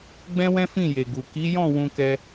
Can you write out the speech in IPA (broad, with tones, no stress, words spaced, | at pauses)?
ɡ͡bɛ̃˦wɛ̃˦ fĩ˦˨je˨ ɡu˨ ki˨˦jɔ̃˦˨ wũ˧kɛ˧